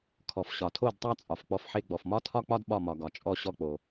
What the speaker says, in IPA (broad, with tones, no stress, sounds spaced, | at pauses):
kʰ ɔ˩ f ɕ ɒ˩ tʰ o˧˩ d tˤ a˥˧ t͡sʼ ɒ˩ f k͡p ɔ˧˩ f ħ e˧˩ ɡ͡b ɔ˩ f m ɒ˥˧ tʰ ɒ˥˧ k͡p ɒ˥˧ d ɓ ɒ˧˩ m ɒ˩ ɡ ɒ˩ t͡ʃʼ ɔ˧˩ ɕ ɔ˧˩ k͡p o˩